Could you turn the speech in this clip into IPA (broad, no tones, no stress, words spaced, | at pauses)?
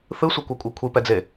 θɯsʷɤkʷɛ kʷʼɤkʷʰipɛd͡ze